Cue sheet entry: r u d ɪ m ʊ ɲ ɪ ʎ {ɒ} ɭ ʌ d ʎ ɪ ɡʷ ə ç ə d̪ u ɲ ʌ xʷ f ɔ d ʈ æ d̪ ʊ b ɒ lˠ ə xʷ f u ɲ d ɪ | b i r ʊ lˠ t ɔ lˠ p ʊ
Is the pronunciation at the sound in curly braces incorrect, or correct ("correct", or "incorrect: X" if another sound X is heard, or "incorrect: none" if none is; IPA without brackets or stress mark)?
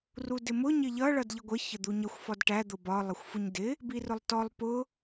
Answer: incorrect: ʌ